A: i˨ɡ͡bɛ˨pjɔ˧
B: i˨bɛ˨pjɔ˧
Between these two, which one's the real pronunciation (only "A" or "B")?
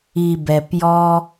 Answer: B